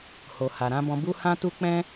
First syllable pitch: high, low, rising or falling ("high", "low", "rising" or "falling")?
low